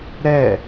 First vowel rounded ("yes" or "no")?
no